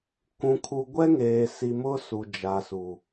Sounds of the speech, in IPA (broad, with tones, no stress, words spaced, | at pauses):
kũ˨kʰu˨ ɡʷɛ˦ŋeː˨si˨ mʊ˦ su˨d͡ʒa˨su˨